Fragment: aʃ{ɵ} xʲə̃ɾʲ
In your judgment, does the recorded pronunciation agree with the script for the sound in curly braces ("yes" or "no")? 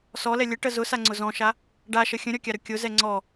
no